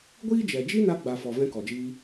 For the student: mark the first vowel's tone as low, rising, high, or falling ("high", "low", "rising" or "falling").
high